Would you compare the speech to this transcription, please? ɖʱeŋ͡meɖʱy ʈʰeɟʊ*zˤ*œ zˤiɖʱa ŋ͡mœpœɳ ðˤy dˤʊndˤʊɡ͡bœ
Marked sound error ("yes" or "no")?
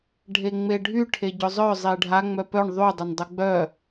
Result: no